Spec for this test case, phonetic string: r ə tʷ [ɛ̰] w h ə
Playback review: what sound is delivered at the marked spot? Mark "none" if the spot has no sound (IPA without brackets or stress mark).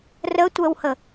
ɛ